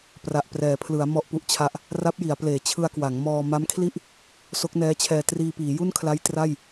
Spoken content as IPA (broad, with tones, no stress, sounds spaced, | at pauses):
p r a˨˩ ʔ p r ɛː˩˦ pʰ l ɯ˩˦ a̯ m ɔ˥˩ ʔ p u˦˥ ʔ t͡ɕʰ a˦˥ ʔ | r a˦˥ p̚ j i˩˦ a̯ p l eː˩˦ t͡ɕʰ ɯ˧ a̯ k w a˩˦ ŋ m ɔː˧ m a˦˥ m kʰ l i˥˩ ʔ | s o˦˥ k̚ n ɛː˦˥ t͡ɕʰ ɛː˧ t r iː˧ p iː˩˦ j u˥˩ n kʰ l a˦˥ j t r a˥˩ j